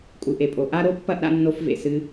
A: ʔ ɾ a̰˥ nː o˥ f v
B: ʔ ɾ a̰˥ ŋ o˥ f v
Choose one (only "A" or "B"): A